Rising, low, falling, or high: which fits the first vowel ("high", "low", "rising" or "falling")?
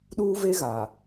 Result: high